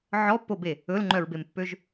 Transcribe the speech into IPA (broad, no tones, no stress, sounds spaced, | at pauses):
ʕ ɔ pː o b e | ɵ l ŋ͡ǃ œ ɹ b e m pː ø ʒ